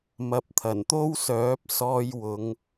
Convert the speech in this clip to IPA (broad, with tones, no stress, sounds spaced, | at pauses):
m ɐ˨ p̚ t̪ʰ ɐ˨˩ n t̪ o˥ w s œː˨˥ p̚ s ɔː˧ j w ʊ˨˧ ŋ